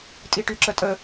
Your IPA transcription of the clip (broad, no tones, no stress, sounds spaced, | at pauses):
tʼ i ʈ y ǁ ə tʼ ə